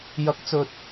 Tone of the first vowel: rising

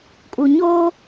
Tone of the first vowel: low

